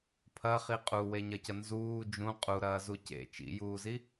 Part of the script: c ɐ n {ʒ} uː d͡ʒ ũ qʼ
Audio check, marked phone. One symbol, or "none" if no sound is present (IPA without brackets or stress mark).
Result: z